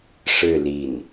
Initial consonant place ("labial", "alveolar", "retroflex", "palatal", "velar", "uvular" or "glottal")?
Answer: retroflex